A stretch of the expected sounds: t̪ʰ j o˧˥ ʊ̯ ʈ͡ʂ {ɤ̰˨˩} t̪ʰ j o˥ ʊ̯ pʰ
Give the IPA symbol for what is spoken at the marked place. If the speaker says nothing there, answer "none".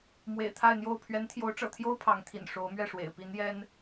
ɤ̰˨˩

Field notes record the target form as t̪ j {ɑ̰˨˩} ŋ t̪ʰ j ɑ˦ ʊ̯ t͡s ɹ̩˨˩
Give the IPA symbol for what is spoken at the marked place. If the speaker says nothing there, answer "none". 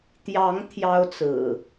ɑ˨˦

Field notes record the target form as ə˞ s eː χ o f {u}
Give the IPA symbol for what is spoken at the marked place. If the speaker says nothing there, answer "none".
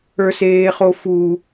u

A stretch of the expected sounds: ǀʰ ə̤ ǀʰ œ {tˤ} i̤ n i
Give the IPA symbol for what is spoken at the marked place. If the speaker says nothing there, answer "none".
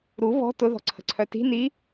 t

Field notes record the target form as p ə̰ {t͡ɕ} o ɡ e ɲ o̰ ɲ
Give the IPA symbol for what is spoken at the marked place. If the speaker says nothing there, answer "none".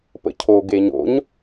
cʰ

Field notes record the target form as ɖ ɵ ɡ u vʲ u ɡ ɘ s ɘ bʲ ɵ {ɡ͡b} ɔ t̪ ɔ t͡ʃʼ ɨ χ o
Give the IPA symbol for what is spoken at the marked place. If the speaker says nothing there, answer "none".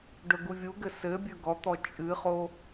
ɡ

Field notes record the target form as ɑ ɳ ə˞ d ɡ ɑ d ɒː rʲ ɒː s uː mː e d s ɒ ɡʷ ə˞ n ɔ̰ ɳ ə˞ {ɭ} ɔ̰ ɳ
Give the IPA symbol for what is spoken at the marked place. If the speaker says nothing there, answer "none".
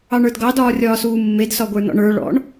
ɭ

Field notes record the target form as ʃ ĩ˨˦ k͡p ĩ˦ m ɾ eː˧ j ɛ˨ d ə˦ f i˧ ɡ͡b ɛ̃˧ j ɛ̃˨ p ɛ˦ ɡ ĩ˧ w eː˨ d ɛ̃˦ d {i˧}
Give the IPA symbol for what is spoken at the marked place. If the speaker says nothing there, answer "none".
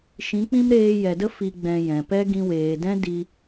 i˧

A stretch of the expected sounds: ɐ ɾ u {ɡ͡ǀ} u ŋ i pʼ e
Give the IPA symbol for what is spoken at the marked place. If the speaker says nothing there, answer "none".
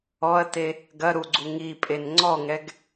ɡ͡ǀ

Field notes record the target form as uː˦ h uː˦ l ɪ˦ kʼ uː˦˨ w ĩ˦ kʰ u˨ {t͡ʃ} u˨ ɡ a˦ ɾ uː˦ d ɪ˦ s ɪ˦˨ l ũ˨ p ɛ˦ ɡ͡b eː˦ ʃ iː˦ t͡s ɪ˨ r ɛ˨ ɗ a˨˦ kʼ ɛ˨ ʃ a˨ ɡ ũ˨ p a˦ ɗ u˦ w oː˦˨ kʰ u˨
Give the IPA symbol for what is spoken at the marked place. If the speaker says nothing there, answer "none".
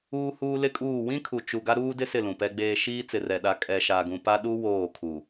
t͡ʃ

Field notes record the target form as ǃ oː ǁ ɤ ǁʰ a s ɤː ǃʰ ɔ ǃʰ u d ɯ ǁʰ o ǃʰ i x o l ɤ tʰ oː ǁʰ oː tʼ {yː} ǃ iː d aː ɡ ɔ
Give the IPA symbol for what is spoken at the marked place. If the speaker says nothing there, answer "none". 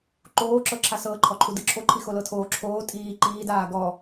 iː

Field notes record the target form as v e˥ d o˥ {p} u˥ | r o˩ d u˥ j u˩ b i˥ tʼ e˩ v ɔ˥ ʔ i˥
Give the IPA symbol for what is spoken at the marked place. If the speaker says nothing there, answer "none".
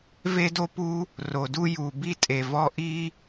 p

